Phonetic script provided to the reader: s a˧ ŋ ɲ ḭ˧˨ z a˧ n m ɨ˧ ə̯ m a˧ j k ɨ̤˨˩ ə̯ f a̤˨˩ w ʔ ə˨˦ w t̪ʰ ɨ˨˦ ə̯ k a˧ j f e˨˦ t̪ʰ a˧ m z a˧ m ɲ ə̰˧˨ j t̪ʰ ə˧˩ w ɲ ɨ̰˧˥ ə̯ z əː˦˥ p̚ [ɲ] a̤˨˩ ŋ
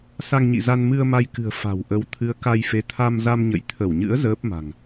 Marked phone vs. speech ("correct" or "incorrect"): incorrect